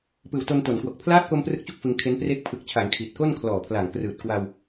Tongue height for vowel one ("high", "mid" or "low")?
high